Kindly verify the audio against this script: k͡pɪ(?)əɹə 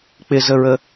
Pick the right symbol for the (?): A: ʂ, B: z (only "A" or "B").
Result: B